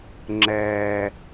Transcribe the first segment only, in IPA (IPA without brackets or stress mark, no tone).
ŋ͡ǁ